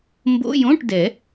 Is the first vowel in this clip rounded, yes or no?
yes